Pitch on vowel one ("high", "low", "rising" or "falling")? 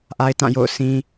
high